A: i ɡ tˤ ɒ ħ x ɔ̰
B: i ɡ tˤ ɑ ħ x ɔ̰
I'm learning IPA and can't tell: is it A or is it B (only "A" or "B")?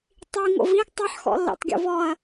B